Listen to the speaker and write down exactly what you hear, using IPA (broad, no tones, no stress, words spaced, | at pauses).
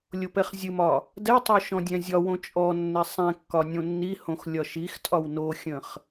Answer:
lʲopɛχzʲɨmɒ | dɛtˤo ʃɔ̃dʲɛ̃zʲɒwõ t͡ʃʼɔnːɛ sˤɛ̃kːɒ nʲõnːihõx lʲɒʃixtʼɒw noxʲə̃χ